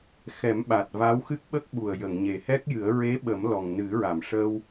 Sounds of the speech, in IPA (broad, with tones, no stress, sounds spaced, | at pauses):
x ɛ˨˩˦ m ɓ a˨˩ t̚ v a˧˥ w x ɨ˦˥ k̚ ɓ ə˦˥ k̚ ɓ u˨˩ ə̯ j ə˨˩˨ ŋ ɲ e˨˩ h ɛ˦˥ k̚ j ɨ˨˩˦ ə̯ ɹ e˧˥ ɓ ə˨˩˦ m l ɔ˨˩ ŋ n ɨ˨˩˦ ɹ a˨˩˨ m ʂ ə˧ w